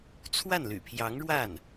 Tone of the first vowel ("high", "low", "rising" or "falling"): falling